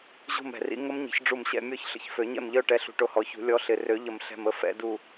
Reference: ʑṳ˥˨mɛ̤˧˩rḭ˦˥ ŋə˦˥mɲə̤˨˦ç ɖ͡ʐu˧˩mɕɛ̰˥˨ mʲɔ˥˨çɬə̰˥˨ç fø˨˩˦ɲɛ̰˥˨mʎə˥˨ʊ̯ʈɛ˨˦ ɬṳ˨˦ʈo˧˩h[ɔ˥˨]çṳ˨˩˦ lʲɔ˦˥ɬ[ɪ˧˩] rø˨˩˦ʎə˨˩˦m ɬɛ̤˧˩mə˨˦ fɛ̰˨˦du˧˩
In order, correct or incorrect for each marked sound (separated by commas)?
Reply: incorrect, correct